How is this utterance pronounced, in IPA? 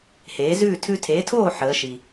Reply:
h eː˩˥ z ʉː˥˩ tʰ ʉ˧ tʰ e˩˥ tʰ oː˥˩ ħ əː˩˥ ʃ i˩

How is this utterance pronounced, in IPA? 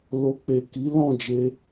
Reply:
l o˨ k͡p e˨ k i˨˦ l ɔ̃˦˨ d͡ʒ e˧

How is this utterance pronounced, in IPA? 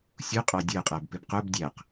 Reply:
sʲ u qʼ ɑ dʲ ɜ qʼ æ b p ɪ b q ʊ b dʲ æ q

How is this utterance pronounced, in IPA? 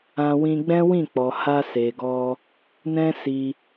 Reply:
ã˧ w ĩ˧ ɡ͡b ɛ̃˦ w ĩ˦˨ k͡p ɔ˨ h a˧ s e˨ ɡ ɔ˧ | n ɛ̃˦ s i˧

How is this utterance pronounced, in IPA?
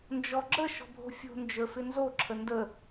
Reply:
n d͡ʒ ɔ ɡ͡ǁ ə ʃ ɔ̤ bʱ o̤ fʲ o̤ n d͡ʒ ə˞ f ɪ n z o ǁʰ ə n d ə

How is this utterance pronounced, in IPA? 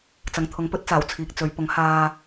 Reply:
t͡s ɐ˨ ŋ t̪ʰ ʊ˨˥ ŋ p ɵ˨˥ t̚ t͡s aː˨˩ w t͡sʰ iː˨ k̚ t͡s ɵ˨˧ ɥ p ʊ˨˥ ŋ h aː˧

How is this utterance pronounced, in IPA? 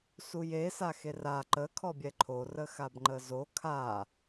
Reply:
s u j e s a x e r a ǃ ə kʰ ɔ bʲ ɛ ǃʰ o r ə x a b ŋ͡ǃ ə z o kʰ a

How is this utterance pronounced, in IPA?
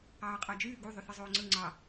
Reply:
ɑː qʼ ɑ d͡ʒ yː ɡ u ðˤ y θ ɯ zˤ oː ŋ͡ǀ ɯ ŋ͡ǀ ɑ

